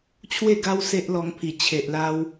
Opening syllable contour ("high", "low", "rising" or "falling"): falling